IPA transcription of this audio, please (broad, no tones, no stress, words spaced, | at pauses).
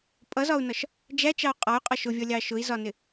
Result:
pʼʌzɒu̯nɒʃ | d͡ʒæt͡ʃɑu̯ qʼɒy̯qʼɒ ʃʊvʲʌlʲɑ ʃʊi̯zɒnɪ